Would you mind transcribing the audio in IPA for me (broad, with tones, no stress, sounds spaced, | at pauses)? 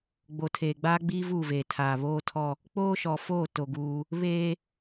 ɡ͡b o˨ tʰ eː˨ ɡ͡b aː˦ ɡ͡b iː˦ v uː˦˨ v eː˨ tʰ aː˨ β oː˦ tʰ ɔ˦ | k͡p oː˦ ʃ ɔ˨ f oː˦˨ t o˨ ɡ uː˦ | β eː˦